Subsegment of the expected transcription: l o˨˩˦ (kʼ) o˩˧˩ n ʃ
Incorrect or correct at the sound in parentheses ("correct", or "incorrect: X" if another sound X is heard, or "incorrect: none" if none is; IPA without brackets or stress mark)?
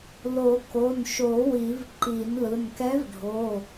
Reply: incorrect: k